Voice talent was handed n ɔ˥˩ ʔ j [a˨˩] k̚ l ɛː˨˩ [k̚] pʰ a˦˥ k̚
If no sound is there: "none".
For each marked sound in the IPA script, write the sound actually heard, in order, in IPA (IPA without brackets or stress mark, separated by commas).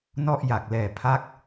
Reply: a˨˩, none